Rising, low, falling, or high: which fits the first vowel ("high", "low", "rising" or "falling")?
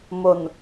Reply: low